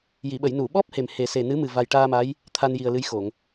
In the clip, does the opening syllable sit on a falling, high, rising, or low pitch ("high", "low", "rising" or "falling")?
low